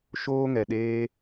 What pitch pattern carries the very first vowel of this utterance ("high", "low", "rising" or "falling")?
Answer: high